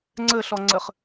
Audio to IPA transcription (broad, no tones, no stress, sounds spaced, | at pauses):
ŋ͡ǀ ɘ ɬ ɔ ŋ͡ǀ ɘ χ